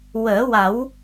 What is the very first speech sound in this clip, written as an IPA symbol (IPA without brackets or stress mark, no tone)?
w